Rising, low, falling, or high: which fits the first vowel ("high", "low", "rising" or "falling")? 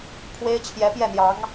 high